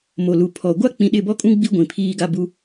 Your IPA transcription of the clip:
m o˨ l u˨ pʰ ɔ˨ ɡʷ a˦ k͡p ĩ˨ ɗ ɪ˦˨ b ɔ˦ kʼ ũ˦ ɡ͡b i˦ ɡʷ ĩ˨ pʰ iː˦ ɡ a˦ b u˦

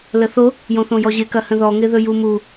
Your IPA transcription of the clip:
l ə θ o | j õ θ õ j ɔ ʑ ɪ k ɐ h ə̃ ð ɔ ŋ ɪ ð ɵ j u m u

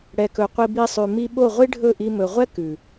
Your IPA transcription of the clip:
ɽ ɛ˨ k ɵ˨ qʷ i˧ b i˧ sˤ ʉ˨ m i˧ ɓ o˦˨ ʁʷ i˦ ɖʱ ɵ˦˨ ʔ i˧ m ɵ˨ ʁʷ ɛ˦ k ʉ˨

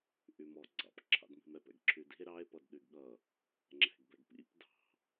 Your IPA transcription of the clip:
ʔ y m ɔ ɡ͡ǀ ɑ̰ p ǁʰ ɑ̰ d m i̤ m ɛ p ɛ̰ ɡ ǁʰ y d i̤ e̯ ɾ ɑ e̯ p ʌ d ɗ y ɡ ɠ ʌ | ŋ͡ǁ ɛ̤ ɡ b ɛ ɡ p ḭ p d ɑ̤

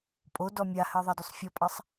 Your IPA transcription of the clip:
pʼ o d ɔ mʲ a h ɜ ðˤ ɑ d y sˤ fʲ ɔ pʼ ɑ sˤ

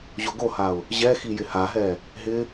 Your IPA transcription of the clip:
ʑ o ɡ o h a ʊ̯ | ʑ ɛ x i j ɪ h a ɦ ɛ | ɦ ɪ

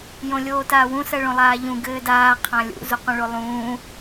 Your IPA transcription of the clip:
j õ lʲ oː t aː w ũ s ɜ ɭ õ lˠ aː ʎ ũ ɡ ɘː d aː qʰ ã lʲ ṵ z u q ũ ɭ o lˠ ũː

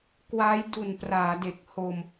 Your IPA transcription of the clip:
k w a˦˥ j d u˨˩ n p r aː˩˦ d e˨˩ k̚ h o˧ m

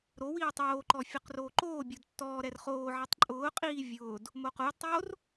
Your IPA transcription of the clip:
ɾ o w iː tˤ oː ǃ ɔ fʲ ʊ q r oː ǃ oː bʲ o d tː ɔː ɾ ɛ r χ oː ʕ ɛ tˤ ǃʼ ʊː qʼ iː vʲ ʊː d | m o q ʊː d tˤ oː r

